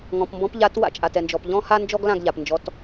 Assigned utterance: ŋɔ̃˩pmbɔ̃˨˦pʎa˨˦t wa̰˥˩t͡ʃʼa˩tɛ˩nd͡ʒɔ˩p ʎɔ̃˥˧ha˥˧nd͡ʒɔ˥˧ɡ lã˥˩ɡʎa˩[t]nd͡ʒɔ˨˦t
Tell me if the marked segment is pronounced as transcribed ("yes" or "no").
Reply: no